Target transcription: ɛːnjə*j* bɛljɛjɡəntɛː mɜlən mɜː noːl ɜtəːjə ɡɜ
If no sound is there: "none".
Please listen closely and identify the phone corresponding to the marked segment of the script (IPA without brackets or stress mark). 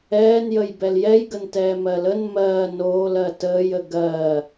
j